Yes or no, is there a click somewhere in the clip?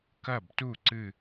yes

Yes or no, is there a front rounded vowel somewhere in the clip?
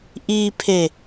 no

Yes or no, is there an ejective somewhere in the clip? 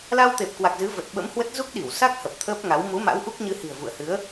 no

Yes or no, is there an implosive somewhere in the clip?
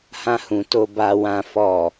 no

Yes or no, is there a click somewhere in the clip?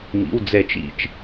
no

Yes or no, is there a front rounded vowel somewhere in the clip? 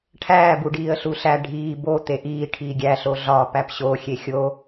no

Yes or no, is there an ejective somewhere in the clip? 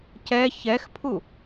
no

